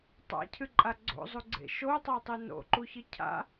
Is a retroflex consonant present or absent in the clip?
absent